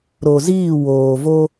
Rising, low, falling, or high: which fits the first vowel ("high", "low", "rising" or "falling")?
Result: low